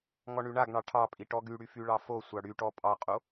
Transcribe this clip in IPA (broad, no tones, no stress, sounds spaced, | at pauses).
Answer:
ŋ ɔ ɳ y ɳ a ɡ ɳ ɑ ʈʰ ɑ pʼ i ʈ ɔ ɡ y ɽ y f y ɭ ɑ f o sʷ ɑ ɽ y ʈ ɔ pʼ ɑ qʼ o